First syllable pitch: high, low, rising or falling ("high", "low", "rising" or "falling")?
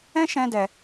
high